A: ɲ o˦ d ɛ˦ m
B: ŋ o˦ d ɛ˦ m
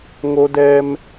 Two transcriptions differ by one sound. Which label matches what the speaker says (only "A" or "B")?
B